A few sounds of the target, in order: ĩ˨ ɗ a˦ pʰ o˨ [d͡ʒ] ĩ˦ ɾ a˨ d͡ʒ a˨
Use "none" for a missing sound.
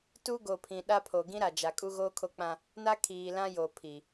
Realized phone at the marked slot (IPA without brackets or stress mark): ɡ